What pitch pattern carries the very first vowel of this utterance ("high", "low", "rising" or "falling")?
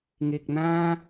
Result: low